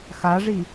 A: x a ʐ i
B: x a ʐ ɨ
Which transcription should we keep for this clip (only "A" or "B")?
A